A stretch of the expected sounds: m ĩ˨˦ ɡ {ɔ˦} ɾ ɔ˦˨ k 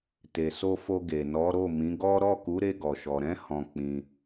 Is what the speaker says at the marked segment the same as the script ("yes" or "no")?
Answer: yes